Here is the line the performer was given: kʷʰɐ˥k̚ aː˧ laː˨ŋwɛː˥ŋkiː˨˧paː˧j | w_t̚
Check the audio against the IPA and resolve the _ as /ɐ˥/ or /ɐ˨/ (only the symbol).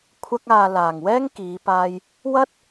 ɐ˥